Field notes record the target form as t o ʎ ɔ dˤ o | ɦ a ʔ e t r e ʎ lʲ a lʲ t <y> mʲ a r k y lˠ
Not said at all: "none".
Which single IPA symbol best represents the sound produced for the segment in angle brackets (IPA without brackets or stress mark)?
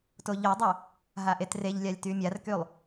y